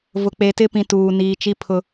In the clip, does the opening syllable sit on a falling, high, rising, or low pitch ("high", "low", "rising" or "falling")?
low